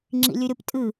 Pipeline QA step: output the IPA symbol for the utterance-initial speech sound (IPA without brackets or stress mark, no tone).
ŋ͡ǁ